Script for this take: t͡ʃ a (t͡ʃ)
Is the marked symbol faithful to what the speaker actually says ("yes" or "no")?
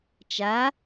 no